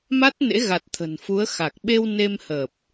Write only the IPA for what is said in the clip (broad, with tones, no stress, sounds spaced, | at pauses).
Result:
m a˦˥ t̚ n ḛ˧˥ ɣ a˨˩ t̚ t̪ʰ ə̤˨˩ n f u˨˦ ə̯ x a˨˩ k̚ ɓ e˧ w n e˧ m h əː˨˩ p̚